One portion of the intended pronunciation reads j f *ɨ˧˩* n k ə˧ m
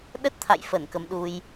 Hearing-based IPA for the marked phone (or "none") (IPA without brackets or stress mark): ə˧˩